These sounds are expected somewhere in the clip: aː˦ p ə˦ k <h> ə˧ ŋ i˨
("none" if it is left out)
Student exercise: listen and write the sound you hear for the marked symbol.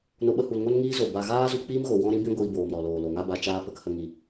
h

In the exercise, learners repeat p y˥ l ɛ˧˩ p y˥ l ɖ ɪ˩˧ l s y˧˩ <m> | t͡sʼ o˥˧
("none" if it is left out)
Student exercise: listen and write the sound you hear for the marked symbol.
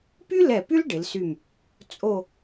m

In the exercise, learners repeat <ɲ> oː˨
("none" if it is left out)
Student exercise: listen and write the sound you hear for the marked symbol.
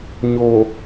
ɲ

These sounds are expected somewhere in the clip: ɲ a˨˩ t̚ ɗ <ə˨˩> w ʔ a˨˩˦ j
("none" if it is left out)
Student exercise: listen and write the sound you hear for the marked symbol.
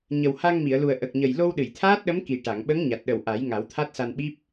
ə˨˩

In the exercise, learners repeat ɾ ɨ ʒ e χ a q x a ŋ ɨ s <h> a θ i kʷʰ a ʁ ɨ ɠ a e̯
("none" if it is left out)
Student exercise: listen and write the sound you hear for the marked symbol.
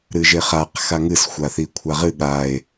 xʷ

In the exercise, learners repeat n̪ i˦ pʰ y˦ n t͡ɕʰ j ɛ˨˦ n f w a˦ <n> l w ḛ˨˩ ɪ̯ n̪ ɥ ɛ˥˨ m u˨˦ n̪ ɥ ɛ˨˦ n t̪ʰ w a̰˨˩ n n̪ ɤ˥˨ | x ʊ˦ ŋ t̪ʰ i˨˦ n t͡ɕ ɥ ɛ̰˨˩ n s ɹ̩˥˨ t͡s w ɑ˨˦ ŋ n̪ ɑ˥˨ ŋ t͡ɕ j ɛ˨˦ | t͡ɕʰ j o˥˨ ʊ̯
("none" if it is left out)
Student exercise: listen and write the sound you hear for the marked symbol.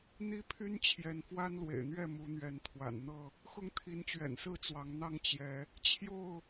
n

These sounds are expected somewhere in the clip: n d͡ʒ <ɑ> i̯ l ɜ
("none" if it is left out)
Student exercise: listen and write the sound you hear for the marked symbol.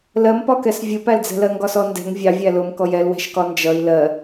ʌ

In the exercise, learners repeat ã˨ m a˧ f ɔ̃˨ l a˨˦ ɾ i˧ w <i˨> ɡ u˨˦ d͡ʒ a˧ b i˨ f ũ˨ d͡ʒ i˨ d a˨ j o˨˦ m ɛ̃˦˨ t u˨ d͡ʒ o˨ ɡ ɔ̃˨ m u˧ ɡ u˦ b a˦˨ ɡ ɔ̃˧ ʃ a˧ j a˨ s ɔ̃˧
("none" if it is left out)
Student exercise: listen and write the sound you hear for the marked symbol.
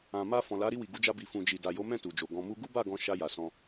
i˨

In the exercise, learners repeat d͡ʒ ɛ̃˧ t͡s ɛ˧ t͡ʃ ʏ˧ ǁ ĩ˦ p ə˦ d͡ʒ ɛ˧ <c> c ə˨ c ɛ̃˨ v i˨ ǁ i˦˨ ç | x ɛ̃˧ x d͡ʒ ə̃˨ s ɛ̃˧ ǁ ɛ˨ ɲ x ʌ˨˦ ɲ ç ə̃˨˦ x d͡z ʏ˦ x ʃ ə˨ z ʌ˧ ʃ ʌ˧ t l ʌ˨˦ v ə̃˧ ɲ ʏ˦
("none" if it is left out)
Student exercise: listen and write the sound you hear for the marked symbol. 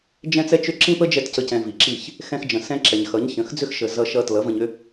t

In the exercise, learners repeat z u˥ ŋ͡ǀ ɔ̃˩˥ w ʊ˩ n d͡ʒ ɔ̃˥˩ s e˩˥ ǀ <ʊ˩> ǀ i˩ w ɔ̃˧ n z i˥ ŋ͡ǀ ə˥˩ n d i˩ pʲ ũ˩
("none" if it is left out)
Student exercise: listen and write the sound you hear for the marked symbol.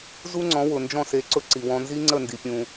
ʊ˧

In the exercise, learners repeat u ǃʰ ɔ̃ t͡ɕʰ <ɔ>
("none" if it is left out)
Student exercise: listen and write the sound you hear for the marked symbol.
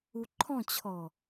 ɔ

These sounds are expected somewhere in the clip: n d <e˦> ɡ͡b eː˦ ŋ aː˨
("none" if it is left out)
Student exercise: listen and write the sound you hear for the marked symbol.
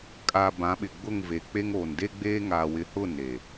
e˦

